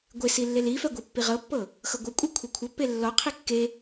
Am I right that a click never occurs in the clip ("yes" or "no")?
yes